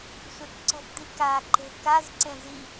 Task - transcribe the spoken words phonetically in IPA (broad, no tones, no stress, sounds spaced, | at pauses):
sʷ e k ǀ ɔ̤ p d̪ i k a ǃ e̤ k a z ǀ ẽ z i